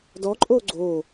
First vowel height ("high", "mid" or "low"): mid